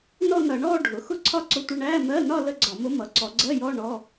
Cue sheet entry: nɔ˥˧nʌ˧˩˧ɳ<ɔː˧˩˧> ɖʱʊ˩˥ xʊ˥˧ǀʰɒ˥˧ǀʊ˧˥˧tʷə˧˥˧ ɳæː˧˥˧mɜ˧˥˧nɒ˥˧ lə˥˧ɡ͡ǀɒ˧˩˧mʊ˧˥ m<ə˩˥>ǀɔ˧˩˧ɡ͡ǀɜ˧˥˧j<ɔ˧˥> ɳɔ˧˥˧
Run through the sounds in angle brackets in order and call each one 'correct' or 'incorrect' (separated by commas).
incorrect, incorrect, incorrect